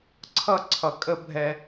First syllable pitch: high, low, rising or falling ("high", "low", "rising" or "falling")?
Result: high